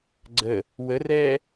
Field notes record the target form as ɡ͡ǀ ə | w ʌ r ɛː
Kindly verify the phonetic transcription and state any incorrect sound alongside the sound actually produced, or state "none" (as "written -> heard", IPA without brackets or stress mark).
ʌ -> ə